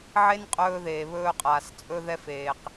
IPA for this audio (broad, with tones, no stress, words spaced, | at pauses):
ʕe˦n qʼɵː˦ðeː˨βɵː˦qʼaː˨s t͡sʼɵ˦ðɛ˦feː˨q